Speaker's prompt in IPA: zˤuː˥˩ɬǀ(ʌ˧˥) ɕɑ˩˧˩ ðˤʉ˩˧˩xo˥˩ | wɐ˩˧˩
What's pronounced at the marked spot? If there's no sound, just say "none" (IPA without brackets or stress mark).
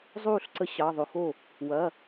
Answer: ə˧˥